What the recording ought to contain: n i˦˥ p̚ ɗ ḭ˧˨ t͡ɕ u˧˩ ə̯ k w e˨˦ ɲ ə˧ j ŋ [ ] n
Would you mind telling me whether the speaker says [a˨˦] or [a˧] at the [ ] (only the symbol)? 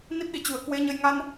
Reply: a˧